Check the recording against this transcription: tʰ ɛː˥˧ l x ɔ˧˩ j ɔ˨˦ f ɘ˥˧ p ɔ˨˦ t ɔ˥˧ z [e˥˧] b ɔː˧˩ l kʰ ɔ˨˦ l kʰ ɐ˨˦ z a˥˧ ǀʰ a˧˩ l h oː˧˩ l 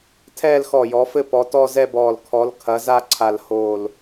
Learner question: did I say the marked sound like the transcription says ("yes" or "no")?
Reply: no